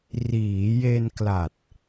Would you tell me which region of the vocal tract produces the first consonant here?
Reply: tongue tip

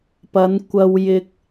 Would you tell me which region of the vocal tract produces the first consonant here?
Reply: lips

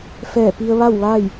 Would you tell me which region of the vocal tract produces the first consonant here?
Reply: lips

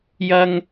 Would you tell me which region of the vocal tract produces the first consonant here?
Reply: palate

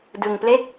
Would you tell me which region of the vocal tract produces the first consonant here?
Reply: tongue tip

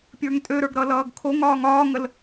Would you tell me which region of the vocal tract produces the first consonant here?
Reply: lips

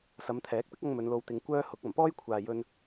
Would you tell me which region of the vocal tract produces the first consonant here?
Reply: tongue tip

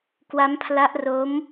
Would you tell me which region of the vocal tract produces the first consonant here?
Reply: velum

